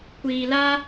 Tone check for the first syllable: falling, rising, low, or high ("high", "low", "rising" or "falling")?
low